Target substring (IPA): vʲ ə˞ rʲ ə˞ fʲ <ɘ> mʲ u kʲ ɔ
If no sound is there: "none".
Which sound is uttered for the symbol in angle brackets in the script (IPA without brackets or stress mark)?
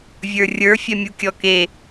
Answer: ɛ